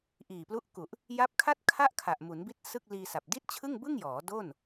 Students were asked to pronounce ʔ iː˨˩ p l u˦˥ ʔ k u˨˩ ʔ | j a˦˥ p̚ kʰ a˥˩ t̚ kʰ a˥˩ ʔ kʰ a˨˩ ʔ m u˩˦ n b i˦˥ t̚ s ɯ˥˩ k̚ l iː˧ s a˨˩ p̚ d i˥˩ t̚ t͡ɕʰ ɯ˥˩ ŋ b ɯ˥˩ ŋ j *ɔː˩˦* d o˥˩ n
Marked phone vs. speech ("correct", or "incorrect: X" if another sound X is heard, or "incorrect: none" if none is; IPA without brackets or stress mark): correct